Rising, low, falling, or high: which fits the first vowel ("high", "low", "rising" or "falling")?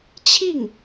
falling